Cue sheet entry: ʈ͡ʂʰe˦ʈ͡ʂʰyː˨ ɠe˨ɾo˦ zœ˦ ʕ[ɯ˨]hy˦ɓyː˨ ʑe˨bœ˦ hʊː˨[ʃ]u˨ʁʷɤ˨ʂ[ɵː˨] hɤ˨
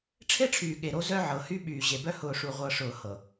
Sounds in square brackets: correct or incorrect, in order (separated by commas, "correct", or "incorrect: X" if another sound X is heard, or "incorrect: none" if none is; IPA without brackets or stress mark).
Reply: incorrect: ɤ˨, incorrect: ʂ, incorrect: ʊː˨